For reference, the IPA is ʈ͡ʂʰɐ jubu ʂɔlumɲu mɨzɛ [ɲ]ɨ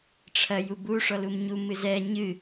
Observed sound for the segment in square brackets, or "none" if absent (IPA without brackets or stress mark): ɲ